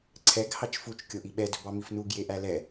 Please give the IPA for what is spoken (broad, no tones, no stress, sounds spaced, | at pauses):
ǀʰ ɛ ɡ h ɑ t͡ʃ f u t͡ʃ kʲ o ʔ i ɓ ɛ d ɵ b ɑ m i f n u ɡ j e ʔ æ l ɛ